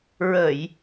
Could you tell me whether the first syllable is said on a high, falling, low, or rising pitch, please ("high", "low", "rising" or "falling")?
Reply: low